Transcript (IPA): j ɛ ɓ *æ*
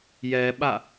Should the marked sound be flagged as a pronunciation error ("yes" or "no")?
yes